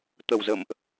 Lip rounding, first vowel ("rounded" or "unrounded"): unrounded